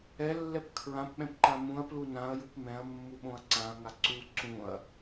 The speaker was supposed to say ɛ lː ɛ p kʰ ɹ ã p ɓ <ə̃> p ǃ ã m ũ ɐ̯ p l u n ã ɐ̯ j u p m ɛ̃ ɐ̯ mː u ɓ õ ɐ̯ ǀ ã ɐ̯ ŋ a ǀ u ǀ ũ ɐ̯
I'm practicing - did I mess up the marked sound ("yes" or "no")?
yes